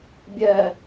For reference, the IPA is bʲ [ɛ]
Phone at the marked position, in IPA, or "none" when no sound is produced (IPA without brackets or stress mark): ɛ